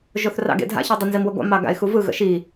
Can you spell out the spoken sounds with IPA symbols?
ʒ o θ r ɑ̰ ɡ ḛ dʱ a̰ ç o dˤ ə n z i m w ə ɡʷ ɑ̰ m ɑ ɡ a̰ ɪ̯ x u v ɯ ɣ ə̰ ʃ i

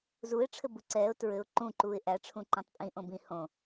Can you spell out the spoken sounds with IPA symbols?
z u ɪ̯ ʈ͡ʂʰ ɘ b u ǀ ɛː ʊ̯ t ɹ ɘ ʊ̯ ǃ ũ ǃ uː ɪ̯ ʔ æ ʈ͡ʂʰ ũ ǃ ɛ̃ tˤ pʼ ĩ ʔ õ b ĩ h õ

